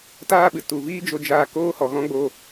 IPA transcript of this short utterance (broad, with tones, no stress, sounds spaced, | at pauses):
t aː˦ ɓ ɨ˨ t u˨ v iː˦ d͡ʒ o˦ d͡ʒ aː˦ k oː˦ h ɔ˨ ɣ ɔ̃˦ ɡ͡b o˧